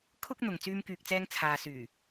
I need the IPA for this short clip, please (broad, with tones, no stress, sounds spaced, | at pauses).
kʰ ʊ˧ k̚ n̪ ʊ˨ ŋ t͡s yː˥ m k yː˧ k̚ t͡s ɛː˥ ŋ t͡sʰ aː˨ s yː˨˩